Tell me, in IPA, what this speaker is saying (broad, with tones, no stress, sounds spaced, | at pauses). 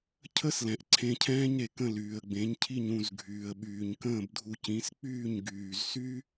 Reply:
cʰ ə˥ s l ɛ̃˩ ʔ ǀʰ ẽ˧ cʰ ɛ̃ː˥ ɲ ɾ e˩ k ə̃˥˩ l yː˩ ə̯ ɡ͡b ẽ˩˥ ɲ cʰ i˥˩ ɲ ũ˥˩ z ɡʱ yː˩ ə̯ ɓ yː˩ ɲ k ə̃ː˥˩ b dʱ u˧ c ĩ˩˥ s k͡p yː˥˩ ɲ ɡ yː˩ z s y˥